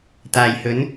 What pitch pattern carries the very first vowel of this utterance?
low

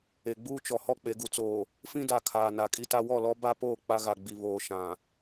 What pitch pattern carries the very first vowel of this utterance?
low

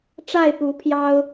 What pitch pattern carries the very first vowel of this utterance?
falling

